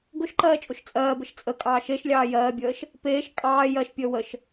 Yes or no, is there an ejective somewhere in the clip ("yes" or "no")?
yes